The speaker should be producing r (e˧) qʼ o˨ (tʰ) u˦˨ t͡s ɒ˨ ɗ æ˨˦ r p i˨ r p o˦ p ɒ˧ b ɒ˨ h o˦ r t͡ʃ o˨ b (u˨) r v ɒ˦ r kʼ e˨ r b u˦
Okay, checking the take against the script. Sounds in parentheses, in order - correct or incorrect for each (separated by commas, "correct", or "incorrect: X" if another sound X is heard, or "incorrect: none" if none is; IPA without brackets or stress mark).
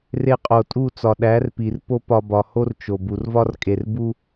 correct, incorrect: tʼ, correct